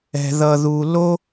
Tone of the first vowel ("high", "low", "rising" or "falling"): high